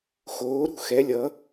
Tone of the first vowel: rising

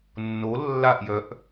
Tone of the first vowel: rising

